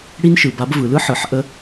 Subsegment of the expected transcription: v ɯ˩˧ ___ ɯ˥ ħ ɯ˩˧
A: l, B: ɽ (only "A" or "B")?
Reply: A